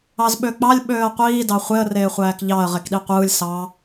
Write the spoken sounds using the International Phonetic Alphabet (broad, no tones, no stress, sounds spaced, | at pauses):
ɑ z ɓ ø k͡p ɑ lʲ ɓ øː ə̯ qʷ iː d ɑ χʷ e ə̯ r eː χʷ æː k ʎ ɑ ə̯ ʁ e k ɗ i qʷ ɯː lʲ s ɑ